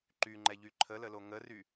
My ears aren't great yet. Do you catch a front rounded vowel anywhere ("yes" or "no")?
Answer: yes